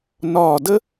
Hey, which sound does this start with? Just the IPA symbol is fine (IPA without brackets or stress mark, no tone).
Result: n